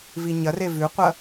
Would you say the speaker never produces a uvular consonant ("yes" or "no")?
no